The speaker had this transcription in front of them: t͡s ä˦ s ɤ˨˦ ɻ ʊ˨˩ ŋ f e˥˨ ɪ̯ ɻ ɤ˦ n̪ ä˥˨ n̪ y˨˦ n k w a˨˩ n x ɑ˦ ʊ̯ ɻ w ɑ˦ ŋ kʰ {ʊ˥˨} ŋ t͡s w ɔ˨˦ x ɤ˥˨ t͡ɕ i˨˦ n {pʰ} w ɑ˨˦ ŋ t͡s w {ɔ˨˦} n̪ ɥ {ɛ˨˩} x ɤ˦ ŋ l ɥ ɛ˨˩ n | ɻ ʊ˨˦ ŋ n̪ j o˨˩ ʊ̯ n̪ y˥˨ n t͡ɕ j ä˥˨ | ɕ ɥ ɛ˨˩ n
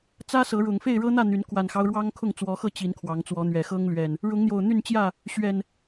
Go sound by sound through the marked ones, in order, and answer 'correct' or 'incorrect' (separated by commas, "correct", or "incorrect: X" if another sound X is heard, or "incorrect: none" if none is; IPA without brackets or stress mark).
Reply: correct, incorrect: kʰ, correct, correct